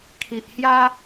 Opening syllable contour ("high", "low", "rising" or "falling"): low